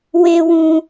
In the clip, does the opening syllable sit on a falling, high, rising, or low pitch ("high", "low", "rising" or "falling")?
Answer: high